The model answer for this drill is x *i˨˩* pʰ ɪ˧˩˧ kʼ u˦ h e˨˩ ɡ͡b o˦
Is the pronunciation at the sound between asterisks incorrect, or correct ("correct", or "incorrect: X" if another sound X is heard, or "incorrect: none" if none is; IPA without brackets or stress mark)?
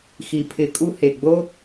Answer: correct